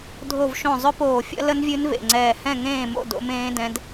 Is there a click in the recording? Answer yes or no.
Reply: yes